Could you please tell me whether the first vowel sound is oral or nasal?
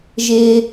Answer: oral